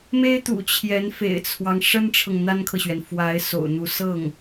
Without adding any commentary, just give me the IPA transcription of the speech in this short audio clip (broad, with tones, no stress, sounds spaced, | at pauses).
m e˥ ɪ̯ t̪ ṵ˨˩ t͡ɕʰ j ɛ˧˥ n f ḛ˨˩ ɪ̯ t͡sʰ w ɑ˦ ŋ ʂ ə˥ n ʈ͡ʂʰ ɤ˨ ŋ n̪ a˥ n kʰ ɤ˨ ɕ ɥ ɛ˩ n f w a˧˥ ɪ̯ s o̰˨˩ ʊ̯ n̪ u˧˥ s ɤ˥˩ ŋ